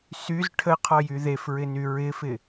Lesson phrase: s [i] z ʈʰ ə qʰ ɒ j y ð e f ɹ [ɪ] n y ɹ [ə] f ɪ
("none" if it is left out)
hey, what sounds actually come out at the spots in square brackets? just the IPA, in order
y, ɪ, ɪ

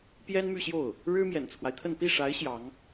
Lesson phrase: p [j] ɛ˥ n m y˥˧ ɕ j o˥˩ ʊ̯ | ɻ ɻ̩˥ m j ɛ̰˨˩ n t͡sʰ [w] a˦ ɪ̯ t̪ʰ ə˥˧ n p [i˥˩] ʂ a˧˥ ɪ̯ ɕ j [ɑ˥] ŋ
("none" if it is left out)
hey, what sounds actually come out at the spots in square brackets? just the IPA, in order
j, w, i˥˩, ɑ˧˥

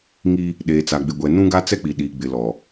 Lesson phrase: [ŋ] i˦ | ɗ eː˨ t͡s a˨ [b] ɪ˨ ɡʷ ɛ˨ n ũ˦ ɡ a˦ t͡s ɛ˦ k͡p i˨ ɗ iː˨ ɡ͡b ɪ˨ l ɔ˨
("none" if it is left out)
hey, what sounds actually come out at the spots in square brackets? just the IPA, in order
ŋ, ɡ͡b

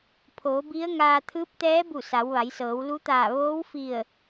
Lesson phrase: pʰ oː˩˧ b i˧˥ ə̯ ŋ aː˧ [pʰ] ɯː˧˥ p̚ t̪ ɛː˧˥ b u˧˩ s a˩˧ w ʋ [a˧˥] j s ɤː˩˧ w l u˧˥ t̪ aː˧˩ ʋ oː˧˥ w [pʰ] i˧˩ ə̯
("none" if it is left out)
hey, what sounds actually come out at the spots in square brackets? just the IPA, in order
t̪ʰ, a˩˧, f

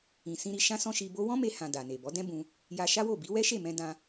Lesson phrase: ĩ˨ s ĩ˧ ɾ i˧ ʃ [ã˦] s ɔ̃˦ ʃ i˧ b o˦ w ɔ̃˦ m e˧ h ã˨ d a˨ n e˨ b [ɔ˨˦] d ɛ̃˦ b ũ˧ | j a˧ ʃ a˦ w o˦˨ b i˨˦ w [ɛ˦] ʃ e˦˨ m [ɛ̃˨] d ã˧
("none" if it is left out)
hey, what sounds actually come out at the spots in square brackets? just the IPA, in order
ã˦, ɔ˨˦, ɛ˦, ɛ̃˧

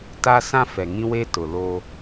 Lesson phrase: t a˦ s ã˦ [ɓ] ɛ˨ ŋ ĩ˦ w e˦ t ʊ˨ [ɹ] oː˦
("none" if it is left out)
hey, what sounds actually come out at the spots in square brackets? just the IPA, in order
f, l

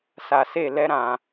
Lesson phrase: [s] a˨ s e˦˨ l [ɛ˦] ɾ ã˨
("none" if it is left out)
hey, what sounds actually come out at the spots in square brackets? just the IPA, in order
s, ɛ˦

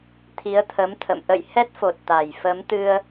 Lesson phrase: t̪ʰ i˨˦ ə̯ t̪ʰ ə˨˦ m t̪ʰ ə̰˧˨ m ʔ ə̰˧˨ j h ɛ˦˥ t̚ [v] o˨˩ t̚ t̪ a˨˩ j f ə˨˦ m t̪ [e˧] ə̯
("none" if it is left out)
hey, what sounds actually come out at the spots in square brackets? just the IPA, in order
f, ɨ˧

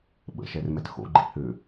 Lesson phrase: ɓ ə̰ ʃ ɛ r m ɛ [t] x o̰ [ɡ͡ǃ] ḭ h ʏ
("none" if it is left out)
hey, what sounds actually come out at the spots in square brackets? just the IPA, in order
t, ɡ͡ǃ

